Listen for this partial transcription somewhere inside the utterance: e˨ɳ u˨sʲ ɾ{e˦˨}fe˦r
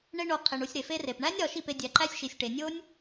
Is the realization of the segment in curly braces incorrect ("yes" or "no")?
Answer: yes